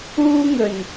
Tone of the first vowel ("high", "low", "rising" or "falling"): high